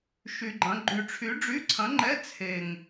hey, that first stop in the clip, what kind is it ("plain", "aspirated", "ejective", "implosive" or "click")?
click